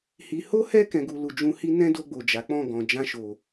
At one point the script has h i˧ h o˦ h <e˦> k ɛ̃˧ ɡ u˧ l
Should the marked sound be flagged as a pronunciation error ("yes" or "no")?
yes